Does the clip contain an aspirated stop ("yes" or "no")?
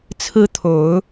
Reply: yes